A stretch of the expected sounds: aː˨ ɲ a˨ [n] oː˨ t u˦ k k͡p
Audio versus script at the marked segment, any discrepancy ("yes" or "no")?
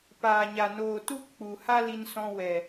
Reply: no